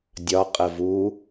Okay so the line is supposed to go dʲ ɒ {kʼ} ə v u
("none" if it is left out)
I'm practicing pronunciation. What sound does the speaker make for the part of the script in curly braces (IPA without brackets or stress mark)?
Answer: qʼ